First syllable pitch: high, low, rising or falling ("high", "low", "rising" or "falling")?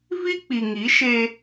high